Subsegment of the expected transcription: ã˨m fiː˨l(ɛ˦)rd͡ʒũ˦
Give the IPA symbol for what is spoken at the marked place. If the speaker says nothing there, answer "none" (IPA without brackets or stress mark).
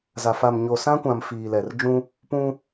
ɛ˨